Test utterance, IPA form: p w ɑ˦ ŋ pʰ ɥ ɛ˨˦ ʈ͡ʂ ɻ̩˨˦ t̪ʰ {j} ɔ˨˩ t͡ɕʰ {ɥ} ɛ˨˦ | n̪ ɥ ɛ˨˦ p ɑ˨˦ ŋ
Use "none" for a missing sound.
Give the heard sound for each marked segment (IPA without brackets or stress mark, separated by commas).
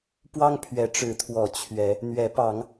w, ɥ